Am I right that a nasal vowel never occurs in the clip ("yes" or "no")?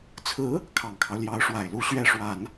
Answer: yes